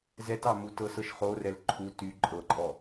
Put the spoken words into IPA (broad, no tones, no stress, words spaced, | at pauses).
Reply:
zɛtɑ mutɤsɤʃ χorɛl ǃʰu ty ǃʼɤǃʼɔ